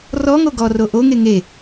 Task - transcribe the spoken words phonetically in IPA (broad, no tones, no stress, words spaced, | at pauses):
rɔŋo ɡɔro ʔoŋe ŋe